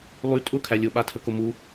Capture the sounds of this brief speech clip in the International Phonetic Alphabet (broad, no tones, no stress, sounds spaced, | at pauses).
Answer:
lˠ y tʼ ʊ kʰ æ lʲ ʊ ɓ a tʰ ə k ʊ m u